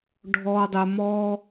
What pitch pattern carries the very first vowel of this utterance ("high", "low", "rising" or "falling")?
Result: high